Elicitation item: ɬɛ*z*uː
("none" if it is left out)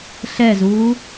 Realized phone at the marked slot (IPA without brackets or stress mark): z